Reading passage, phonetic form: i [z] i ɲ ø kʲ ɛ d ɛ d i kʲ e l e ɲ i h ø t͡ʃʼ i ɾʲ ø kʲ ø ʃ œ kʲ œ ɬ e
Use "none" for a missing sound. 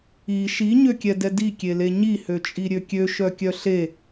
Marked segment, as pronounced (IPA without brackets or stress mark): ʃ